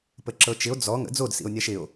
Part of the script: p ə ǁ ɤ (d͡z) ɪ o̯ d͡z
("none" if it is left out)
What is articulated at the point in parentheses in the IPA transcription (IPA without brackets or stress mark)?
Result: t͡ʃ